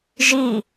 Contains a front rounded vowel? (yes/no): no